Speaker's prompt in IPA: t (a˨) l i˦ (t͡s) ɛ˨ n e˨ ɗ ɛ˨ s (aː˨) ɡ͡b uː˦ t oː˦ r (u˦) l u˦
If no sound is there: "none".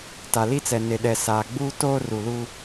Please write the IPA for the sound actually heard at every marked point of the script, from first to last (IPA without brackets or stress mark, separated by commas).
a˨, t͡s, aː˨, u˨